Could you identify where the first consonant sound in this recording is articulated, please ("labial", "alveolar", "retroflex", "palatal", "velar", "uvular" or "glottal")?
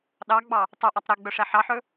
alveolar